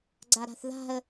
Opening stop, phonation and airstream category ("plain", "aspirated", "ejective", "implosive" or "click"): click